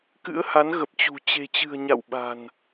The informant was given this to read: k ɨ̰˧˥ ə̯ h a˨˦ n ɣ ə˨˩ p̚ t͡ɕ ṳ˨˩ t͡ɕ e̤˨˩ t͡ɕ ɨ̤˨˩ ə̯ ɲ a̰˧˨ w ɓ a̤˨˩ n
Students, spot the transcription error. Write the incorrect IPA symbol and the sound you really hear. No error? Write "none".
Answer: none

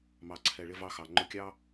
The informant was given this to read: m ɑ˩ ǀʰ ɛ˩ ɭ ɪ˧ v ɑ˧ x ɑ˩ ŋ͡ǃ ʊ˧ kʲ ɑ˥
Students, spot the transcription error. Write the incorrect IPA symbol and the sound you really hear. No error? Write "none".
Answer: none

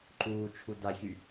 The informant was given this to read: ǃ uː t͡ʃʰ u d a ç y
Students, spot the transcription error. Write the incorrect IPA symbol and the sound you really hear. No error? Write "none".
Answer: none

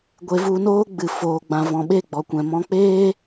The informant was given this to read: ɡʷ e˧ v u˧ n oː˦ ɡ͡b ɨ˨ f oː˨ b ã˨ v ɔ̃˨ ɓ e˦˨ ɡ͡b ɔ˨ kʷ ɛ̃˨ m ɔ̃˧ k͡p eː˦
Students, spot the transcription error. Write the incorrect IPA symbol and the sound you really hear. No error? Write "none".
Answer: b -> ɡ͡b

